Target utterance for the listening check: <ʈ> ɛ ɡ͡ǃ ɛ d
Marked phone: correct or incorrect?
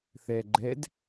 incorrect: θ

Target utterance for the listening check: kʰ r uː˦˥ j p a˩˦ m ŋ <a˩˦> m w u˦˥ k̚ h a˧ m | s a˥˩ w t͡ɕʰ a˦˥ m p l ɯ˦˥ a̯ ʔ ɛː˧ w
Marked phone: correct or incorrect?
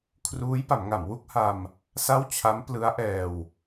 correct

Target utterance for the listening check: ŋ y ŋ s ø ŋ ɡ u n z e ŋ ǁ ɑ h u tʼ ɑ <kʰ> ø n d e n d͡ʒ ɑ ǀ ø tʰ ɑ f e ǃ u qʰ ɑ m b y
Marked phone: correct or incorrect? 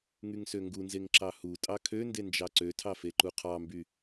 correct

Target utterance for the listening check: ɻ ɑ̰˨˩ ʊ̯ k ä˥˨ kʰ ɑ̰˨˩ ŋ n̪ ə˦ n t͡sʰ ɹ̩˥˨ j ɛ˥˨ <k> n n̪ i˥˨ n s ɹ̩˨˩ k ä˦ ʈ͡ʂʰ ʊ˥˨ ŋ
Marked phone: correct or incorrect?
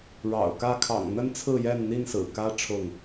incorrect: none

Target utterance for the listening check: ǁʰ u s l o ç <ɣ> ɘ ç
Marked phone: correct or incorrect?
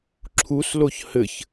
incorrect: h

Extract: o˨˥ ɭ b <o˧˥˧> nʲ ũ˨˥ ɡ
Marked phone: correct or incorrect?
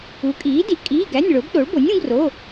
incorrect: o˨˥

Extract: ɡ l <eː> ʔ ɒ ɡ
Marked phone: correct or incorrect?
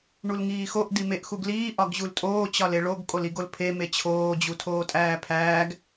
incorrect: iː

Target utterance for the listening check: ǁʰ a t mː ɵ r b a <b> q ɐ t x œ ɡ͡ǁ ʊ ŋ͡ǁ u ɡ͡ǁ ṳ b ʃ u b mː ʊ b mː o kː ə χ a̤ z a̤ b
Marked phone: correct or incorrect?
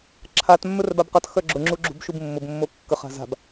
correct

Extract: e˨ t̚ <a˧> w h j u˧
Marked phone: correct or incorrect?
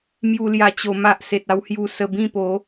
correct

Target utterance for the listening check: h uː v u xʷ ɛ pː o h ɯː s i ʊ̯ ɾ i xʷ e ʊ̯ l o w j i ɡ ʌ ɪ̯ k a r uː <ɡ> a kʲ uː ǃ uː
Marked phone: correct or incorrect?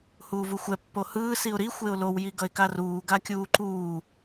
correct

